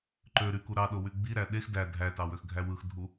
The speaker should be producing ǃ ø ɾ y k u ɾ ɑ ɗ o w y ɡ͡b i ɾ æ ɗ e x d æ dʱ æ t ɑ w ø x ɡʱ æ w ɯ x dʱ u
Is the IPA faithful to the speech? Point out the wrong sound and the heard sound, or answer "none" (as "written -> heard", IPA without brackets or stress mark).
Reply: none